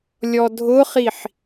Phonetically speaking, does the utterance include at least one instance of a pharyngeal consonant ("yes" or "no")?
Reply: yes